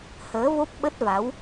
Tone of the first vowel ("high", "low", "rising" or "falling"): rising